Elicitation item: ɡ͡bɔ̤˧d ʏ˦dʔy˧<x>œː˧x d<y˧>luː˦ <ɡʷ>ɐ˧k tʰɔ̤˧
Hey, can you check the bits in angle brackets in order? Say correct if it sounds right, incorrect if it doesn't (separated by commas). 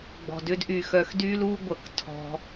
correct, incorrect, correct